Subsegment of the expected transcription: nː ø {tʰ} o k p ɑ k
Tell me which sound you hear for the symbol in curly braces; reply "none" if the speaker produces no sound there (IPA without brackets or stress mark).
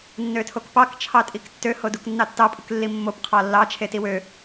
tʰ